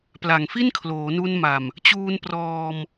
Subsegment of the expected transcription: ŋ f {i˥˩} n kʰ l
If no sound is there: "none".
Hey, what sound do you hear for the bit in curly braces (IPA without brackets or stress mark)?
i˥˩